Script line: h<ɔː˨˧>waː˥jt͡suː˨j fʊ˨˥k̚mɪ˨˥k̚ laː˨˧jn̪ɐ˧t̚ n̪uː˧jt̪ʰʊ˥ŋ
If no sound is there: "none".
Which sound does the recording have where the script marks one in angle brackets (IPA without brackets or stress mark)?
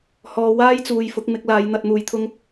ɔː˨˧